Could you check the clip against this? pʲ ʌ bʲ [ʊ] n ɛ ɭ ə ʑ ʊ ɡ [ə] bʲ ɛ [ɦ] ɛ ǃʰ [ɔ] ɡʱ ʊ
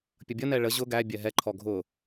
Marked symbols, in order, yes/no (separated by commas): no, no, yes, yes